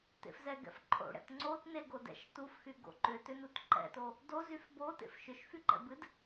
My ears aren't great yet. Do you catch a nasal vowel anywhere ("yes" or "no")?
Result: no